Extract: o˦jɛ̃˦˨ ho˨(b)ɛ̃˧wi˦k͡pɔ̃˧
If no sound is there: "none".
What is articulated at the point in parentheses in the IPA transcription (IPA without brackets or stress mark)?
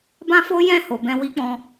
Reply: b